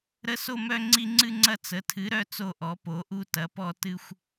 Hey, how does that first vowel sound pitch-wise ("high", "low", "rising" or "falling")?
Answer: high